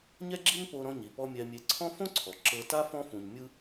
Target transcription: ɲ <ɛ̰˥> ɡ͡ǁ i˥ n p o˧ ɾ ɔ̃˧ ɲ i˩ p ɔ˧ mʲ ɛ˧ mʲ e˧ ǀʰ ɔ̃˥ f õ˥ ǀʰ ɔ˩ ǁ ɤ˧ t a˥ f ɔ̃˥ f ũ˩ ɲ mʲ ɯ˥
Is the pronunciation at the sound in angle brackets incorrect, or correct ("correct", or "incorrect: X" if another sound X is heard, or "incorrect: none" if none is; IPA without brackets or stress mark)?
incorrect: ɛ˥